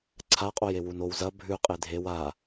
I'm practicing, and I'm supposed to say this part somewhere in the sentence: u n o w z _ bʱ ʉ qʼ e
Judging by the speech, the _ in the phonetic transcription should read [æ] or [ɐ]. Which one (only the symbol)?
ɐ